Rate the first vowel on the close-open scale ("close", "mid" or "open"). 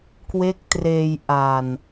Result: mid